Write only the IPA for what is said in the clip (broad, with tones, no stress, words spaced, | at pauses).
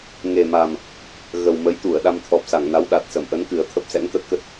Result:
ŋe˨˩ma˨˩m | ɣə˨˩wmə˨˦jt̪u˧˩ə̯ ɗa˧mt̪ʰɔ˨˩p̚sa˧˩ŋna˨˦w ɗa˨˩t̚sə˧˩mʔə˨˦nkɨ˨˩ə̯ t̪ʰə˦˥p̚sɛ̰˧˥ŋt̪ə˦˥t̚kə˦˥t̚